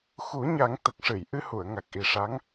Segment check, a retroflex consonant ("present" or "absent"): present